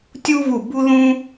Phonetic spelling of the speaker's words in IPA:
tʲ u˥ v u˦˨ b u˥ ð ũ˥

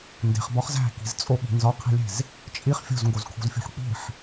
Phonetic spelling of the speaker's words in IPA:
n d e̤ χ b ɒ χ z æ̤ k i̤ z t͡sʼ o ɓ i̤ n z ɒ qʰ i̤ lʲ e̤ z | t͡ʃʼ i χ fʲ o̤ z ŋ ɡ o z kʰ o̤ z fʲ o̤ ħ k͡p i̤ ħ

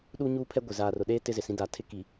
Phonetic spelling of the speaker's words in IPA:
ɗ u˦ ɲ uː˦ pʰ ɛ˦ ɡʷ ɪ˨ z aː˨ r ʊ˨ ɗ eː˦ t ɪ˦ z ɪ˨ s ĩ˦ d a˨ tʰ ɪ˦ k i˨

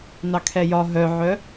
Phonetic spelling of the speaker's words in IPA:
n ɑ kʰ ɛ j ɒ ɦ œ ʕ œ

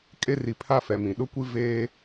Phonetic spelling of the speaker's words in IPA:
kʼ e˦ r i˨ pʰ a˦ f ɛ˨ m ĩ˨ ɗ ʊ˦ kʷ i˦ v eː˦

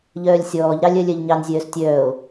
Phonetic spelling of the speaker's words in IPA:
ʎ œː lʲ sʲ ɔː ʎ ɾ ɑ lʲ œ lʲ œ ʎ ɲ ɑ n zʲ œː s tʲ œː o̯

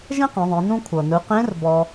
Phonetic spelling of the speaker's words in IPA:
ʒ ẽ˥ q ẽ˩˧ ðˤ ẽ˩˧ n ũ˧ kʷʰ ɤ˩ n ɯ˩˧ q ẽ˧˥ r b ɔ˧

